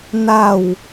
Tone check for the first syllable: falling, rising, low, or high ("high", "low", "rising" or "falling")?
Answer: falling